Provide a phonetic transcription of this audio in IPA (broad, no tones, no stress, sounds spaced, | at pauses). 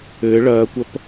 ɘː ɭ ɐː kʷ ɐ p